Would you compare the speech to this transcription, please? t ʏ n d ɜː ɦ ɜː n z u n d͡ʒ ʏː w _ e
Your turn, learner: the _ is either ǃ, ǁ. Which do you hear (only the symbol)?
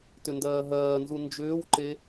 ǃ